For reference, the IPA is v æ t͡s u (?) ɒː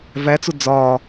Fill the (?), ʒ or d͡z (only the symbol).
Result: d͡z